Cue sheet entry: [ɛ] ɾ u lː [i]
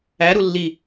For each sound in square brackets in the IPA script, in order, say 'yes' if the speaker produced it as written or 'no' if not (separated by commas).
no, yes